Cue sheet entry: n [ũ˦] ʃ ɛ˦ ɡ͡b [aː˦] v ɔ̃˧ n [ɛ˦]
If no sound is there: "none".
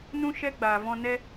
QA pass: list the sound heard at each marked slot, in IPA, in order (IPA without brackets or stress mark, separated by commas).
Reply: ũ˦, aː˨, ɛ˦